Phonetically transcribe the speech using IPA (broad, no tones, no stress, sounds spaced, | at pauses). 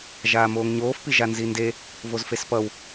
ʒ aː m oː ŋ ɲ oː f p i ʒ a n z i n d e | v o z f e s p ʌ w